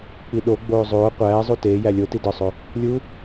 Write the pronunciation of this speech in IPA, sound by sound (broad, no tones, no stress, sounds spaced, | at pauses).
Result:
k͡p i ɗ o ɡ͡b oː zˤ oː qʷ æː zˤ u t eː j æ lʲ o t i d ɒ sˤ o | lʲ u